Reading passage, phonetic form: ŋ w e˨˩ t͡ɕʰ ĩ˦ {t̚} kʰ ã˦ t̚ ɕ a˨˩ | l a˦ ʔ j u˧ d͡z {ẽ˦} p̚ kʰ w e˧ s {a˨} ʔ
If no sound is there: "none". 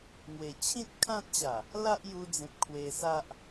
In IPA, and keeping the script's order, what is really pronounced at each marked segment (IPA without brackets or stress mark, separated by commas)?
t̚, ẽ˨, a˦